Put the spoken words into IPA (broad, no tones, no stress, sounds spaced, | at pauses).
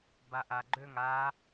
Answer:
b a ʔ a ɡ͡ǃ ø ŋ a